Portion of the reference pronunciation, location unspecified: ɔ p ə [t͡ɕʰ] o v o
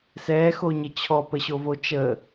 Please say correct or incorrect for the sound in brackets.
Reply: incorrect